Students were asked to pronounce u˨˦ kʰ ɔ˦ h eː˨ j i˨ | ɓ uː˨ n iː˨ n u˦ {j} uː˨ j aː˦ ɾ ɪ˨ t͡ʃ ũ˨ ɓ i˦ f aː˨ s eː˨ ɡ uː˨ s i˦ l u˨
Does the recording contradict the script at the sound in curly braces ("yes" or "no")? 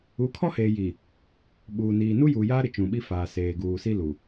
no